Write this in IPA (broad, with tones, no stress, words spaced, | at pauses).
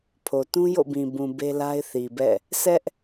pʰo˨tũ˦ jo̰˦˨bĩ˨ bũ˨ be˦la˦ɪ̯θi˨bɛ̰˦˨ | sɛ˦ʔ